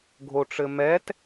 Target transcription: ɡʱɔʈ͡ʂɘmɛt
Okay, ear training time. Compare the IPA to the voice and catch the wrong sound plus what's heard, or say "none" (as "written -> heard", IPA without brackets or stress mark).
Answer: ɔ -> o